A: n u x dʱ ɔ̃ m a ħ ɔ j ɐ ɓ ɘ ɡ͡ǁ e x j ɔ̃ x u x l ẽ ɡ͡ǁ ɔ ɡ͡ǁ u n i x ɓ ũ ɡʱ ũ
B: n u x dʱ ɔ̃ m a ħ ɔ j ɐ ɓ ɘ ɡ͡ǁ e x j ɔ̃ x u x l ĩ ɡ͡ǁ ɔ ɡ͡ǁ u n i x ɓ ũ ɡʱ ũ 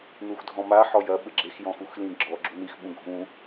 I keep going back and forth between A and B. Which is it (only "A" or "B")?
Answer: B